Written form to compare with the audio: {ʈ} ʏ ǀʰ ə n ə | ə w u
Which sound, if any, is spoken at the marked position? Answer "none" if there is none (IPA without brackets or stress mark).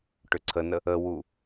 ʈ